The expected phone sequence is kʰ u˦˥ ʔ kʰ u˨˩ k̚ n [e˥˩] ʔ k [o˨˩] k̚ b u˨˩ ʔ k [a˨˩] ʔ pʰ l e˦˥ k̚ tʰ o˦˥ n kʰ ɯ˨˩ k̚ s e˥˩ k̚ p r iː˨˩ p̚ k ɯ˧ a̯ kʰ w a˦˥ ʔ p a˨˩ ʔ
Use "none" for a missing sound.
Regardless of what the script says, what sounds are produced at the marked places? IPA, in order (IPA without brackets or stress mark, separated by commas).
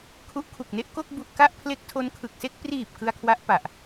e˥˩, o˥˩, a˥˩